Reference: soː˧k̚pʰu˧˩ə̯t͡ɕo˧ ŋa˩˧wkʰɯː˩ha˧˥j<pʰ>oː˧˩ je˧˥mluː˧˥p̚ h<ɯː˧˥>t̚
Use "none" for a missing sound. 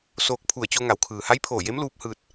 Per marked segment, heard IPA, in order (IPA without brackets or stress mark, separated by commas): pʰ, ɯː˧